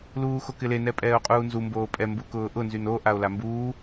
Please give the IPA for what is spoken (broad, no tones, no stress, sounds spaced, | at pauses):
l uː x o k ɪ l e n ɛ pʼ ɛː o̯ qʼ uː n z u m b oː pʼ ɛ m b u k ʊː ʔ ʊ n z y n o ʔ a o̯ l a m b uː